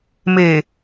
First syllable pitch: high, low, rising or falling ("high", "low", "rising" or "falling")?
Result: low